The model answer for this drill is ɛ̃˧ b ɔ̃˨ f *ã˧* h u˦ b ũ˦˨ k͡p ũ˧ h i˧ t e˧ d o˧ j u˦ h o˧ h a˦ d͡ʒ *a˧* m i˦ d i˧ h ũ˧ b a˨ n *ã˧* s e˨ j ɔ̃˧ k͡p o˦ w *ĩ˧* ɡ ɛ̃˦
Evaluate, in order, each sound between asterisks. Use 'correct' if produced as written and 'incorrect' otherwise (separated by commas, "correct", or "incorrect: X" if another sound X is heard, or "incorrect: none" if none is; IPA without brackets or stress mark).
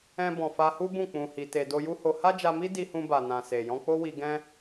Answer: incorrect: a˧, correct, incorrect: ã˨, incorrect: i˧